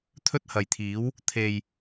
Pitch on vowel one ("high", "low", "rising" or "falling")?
high